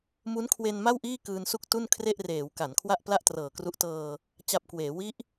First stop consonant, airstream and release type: aspirated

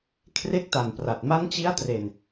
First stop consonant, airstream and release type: aspirated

